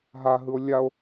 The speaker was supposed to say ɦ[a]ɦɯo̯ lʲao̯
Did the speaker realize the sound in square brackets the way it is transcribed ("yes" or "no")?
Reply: yes